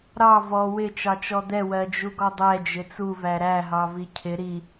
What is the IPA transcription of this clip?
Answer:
ɾ ɑ v ɔ w ɪ t͡ʃ ɑ t͡ʃ ɔ d̪ ɛ w ɜ d͡ʒ u ɡ ɔ dˤ ɛ d͡ʒ ɪ t͡s u v æ ɾ æ ɦ ɑ v i cʰ ɪ ɾ i

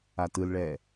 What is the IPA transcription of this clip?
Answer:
a t ɯ l ɭ ɛː

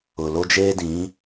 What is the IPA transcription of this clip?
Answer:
ʊ˨ l o˦ d͡ʒ eː˦ d ĩ˨˦

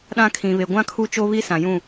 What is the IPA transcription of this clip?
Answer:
ɗ ã˦ kʰ ĩ˨ β e˨ ɡʷ ã˦ kʰ u˦ t͡ʃ o˦ β i˦ s ã˨ j ũ˦˨

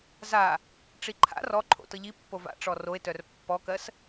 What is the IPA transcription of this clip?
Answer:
z a | ʈ͡ʂ i ǃʰ a̰ r ɔ ǃʰ o̰ t ɤ ʎ i pː o v a̰ ʈ͡ʂ ɔ r o e̯ t œ r pː ɔ k ɜ s

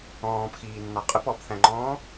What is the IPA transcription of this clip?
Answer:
ɔ̃ː p x iː nː ɑ qʼ ə p ɔ p θ æ̃ ŋ͡ǃ ɔ̃ː

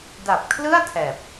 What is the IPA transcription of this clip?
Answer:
d a˨˩ p̚ kʰ l ɯ˥˩ a̯ tʰ ɛː˨˩ p̚

